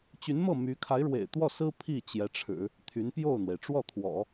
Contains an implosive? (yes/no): no